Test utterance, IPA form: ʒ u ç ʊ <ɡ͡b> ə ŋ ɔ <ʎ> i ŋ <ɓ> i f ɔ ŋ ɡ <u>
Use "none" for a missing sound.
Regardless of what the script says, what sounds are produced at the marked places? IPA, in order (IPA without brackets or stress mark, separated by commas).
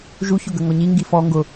ɡ, ɲ, ɡ, ʊ